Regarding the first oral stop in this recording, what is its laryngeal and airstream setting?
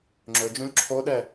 click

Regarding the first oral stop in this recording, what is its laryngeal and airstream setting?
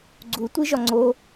click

